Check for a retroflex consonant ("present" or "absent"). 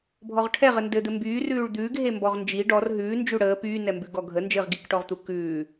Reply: present